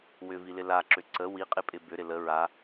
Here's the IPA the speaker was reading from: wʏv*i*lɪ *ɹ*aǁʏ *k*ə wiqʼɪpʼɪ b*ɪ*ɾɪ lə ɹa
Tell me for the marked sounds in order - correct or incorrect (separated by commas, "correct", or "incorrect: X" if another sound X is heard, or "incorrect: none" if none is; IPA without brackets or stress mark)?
correct, incorrect: l, incorrect: ǀ, incorrect: ʏ